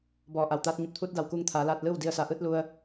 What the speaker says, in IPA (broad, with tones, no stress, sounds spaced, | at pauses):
b ɔː˧˩ ʔ a˩ w t̪ aː˧˥ t̚ ɲ u˧˩ p̚ t̪ʰ uː˧˥ t̚ d a˧˩ w k uː˧ ŋ t̪ʰ aː˩˧ l aː˧ t̚ l ɯː˥˨ w d i˧ ə̯ s a˩˧ ʔ ɯː˧˥ t̚ l u˧ ə̯